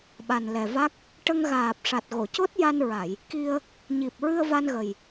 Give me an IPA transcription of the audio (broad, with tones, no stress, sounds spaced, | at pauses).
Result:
ɓ a˨˩ n l ɛ˨˩ v a˦˥ k̚ | ʈ ə˧ ŋ ɣ aː˨˩ p̚ ʂ a˨˩ t̚ ɣ o˨˩˨ c o˦˥ t̚ j a˧ n ɹ a˨˩˨ j | k i˧ ə̯ | ɲ i˨˩ p̚ ɹ ɨ˧ ə̯ v a˧ n ɣ ə˨˩ j